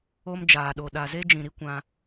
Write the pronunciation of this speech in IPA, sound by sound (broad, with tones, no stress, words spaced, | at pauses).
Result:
o˦m d͡ʒaː˨ɗo˨ ɗa˨ze˦d͡ʒĩ˨ɾi˦ kʷã˧